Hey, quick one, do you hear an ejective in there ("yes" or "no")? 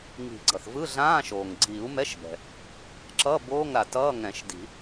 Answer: no